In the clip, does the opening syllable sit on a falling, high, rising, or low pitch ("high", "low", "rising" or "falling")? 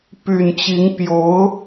low